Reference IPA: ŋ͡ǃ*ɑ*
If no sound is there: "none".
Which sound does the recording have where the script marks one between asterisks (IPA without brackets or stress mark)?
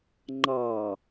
ɑ